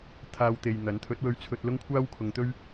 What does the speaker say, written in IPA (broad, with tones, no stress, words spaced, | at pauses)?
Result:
t̪ʰaː˧wt̪e˨jn̪ɐ˨˥n t̪ʰɵ˨˥t̚wɵ˧ɥt͡sʰɵ˧t̚ lʊ˥ŋkʷʰaː˥wkʰʊ˨˧ŋt̪ɵ˥ɥ